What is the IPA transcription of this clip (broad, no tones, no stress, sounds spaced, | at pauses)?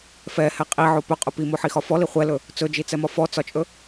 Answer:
f ɛ h ɛ qʼ i ʕ o p ɵ qʼ ɵ p i m o ħ i x ɒ f ɔ l i χʷ ɛ l ɵ | t͡s ɵ d͡ʒ i t͡s ɛ m ɒ f ɔ t͡s ɒ t͡ʃʼ ɵ